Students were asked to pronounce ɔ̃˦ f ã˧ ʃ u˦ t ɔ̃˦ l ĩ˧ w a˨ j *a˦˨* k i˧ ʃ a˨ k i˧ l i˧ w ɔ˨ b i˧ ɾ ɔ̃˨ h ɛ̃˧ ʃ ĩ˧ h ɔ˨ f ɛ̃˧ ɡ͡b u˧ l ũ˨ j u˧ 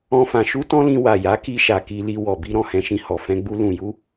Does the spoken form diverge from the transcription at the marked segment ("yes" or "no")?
yes